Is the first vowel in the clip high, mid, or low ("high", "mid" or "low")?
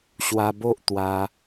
low